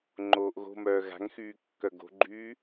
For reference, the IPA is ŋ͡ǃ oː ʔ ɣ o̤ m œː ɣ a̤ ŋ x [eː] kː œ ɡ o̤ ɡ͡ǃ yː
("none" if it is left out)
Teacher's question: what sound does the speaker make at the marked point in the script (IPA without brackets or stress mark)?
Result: yː